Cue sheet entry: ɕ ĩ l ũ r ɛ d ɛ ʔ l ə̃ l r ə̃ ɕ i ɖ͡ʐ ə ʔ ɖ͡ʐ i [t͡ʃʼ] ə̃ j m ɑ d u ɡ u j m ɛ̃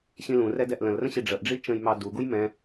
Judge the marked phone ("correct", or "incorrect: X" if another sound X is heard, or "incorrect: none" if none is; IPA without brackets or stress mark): incorrect: t͡ʃ